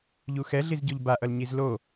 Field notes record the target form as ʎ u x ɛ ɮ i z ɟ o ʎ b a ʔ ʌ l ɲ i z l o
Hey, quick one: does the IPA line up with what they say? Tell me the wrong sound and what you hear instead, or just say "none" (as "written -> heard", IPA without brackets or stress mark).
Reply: none